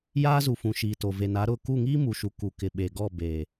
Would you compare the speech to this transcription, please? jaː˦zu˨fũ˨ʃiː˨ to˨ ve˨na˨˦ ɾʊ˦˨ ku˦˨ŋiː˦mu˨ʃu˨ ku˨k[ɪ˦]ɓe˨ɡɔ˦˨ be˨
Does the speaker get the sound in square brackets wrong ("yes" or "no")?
yes